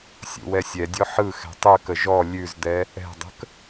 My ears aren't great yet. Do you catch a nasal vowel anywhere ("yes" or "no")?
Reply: no